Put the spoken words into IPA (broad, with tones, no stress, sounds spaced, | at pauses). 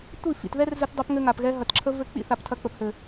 tʷ i˦˨ f ḭ˨ t ð ɛ˦ r z ɘ˧ t dˤ o˧ p ŋ ɘ˧ ŋ a˨ p ɣ ɛ˧ ɦ ɐ˨ t ǁʰ ə˧ v ɘ˦˨ k͡p ḭ˦ θ a˨ p tʰ ɐ˧ k͡p ə˨ p h ɘ˨